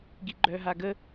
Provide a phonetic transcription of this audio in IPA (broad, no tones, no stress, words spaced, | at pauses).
ɡiɡ͡ǃœɦaɡə